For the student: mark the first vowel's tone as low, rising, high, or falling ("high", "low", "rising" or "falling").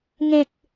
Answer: low